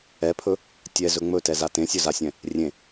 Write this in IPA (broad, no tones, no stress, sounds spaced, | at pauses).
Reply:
ɛ pʰ ɵ | tʲ ɛ z ɵ ŋ͡m ɵ t ɛ z a t ẽ sʲ ɵ z a sʲ ɛ̃ | rʲ ẽ